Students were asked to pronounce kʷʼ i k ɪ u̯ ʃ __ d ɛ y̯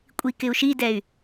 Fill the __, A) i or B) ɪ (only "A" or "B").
A